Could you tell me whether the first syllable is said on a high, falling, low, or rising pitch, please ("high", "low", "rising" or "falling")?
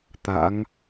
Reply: rising